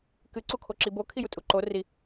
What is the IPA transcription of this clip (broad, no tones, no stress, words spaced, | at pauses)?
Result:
kɨ ǀukʰoǁibo kʰijutʼuǃo ri